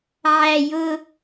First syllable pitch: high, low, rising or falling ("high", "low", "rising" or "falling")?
high